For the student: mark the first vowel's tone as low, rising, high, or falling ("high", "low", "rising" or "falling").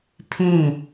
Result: falling